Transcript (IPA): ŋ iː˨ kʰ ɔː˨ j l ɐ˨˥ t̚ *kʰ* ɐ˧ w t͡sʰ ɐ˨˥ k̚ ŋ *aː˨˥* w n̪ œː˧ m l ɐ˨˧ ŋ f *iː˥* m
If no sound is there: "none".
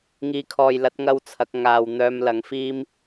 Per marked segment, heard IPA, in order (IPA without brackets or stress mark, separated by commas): ŋ, aː˧, iː˥